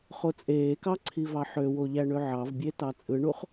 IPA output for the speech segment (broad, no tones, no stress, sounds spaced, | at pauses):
χ o t͡sʼ eː k ɑ ǀʰ i v ɑ ħ ø w o ʎ æ ɳ ø ʕ ɑ v bʲ e t ɑ t͡sʼ ɯ ɳ u χ